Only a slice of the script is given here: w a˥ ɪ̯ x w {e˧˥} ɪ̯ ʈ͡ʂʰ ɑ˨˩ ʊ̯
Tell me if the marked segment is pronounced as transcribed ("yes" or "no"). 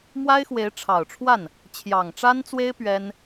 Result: yes